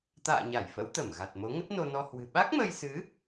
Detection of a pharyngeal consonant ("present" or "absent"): absent